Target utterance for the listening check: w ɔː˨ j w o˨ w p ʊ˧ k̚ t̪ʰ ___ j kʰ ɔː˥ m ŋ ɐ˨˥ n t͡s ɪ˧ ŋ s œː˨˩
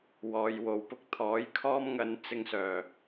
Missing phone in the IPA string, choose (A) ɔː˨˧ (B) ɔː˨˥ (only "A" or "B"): B